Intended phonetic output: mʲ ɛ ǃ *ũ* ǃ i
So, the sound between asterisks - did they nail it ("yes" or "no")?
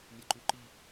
no